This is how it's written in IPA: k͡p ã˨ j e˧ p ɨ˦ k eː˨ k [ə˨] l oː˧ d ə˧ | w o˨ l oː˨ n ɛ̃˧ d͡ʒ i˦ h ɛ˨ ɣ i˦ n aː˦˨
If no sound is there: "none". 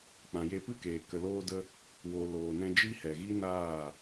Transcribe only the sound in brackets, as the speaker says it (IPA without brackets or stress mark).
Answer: ə˨